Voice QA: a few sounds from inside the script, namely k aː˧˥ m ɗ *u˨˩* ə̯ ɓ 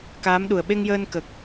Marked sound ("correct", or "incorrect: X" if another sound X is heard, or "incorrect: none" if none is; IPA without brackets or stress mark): correct